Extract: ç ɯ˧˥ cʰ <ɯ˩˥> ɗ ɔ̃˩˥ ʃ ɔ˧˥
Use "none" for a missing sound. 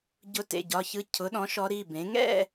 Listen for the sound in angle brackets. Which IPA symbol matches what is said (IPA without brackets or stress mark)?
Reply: ʊ˩˥